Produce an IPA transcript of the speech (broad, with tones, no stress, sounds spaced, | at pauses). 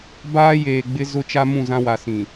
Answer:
b aː˦ j eː˨ ɡ͡b ɪ˦ z ʊ˦ t͡ʃ a˦ m ũ˦˨ z ã˦ w a˨ s ĩ˨